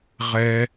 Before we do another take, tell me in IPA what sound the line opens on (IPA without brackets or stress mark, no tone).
ʁ